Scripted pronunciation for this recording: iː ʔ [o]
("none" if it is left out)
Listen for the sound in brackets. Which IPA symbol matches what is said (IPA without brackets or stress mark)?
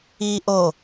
o